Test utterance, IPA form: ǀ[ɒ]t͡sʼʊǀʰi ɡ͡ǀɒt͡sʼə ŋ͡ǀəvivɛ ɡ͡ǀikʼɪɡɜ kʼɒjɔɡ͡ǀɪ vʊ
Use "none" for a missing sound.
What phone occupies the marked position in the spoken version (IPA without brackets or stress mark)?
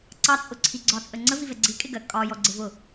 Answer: ɑ